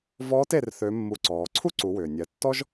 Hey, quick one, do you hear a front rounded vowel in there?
yes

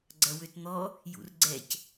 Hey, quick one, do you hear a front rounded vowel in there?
yes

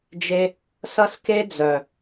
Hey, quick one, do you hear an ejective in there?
no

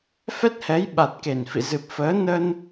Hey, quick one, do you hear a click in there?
no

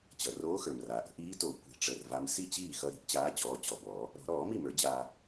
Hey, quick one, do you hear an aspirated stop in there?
no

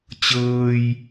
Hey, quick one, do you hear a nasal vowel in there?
no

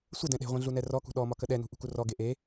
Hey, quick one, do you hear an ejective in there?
no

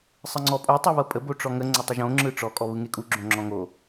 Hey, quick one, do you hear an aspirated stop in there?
no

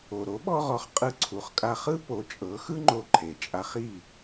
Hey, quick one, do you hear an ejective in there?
yes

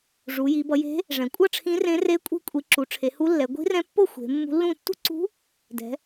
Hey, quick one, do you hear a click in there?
yes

